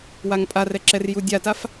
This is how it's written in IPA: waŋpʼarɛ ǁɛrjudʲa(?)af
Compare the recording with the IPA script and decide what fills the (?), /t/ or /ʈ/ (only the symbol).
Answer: t